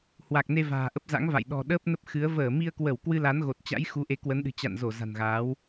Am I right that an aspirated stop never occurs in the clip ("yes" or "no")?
yes